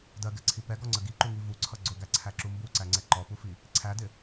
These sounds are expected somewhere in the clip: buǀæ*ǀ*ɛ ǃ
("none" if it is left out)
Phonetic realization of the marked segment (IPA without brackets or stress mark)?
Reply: ŋ͡ǀ